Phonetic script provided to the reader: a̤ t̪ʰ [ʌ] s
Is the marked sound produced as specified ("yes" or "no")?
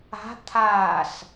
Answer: no